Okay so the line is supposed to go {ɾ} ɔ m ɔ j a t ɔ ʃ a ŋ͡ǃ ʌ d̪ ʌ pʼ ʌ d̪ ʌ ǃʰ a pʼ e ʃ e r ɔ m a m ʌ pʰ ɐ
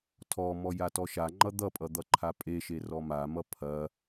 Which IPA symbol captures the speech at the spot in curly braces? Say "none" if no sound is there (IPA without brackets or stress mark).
tʰ